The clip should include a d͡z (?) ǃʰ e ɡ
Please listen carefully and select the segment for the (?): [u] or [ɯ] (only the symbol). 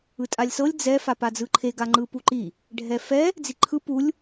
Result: ɯ